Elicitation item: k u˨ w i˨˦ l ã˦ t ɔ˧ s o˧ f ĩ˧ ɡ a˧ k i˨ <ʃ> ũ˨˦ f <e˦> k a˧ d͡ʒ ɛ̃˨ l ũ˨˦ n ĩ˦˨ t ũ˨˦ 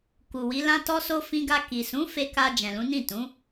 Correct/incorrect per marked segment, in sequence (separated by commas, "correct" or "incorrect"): incorrect, incorrect